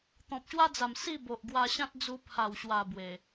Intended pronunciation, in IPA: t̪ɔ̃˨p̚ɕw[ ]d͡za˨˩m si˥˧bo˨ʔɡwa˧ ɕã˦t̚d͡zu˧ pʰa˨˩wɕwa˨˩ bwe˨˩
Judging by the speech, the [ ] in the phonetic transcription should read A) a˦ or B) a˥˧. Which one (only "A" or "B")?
A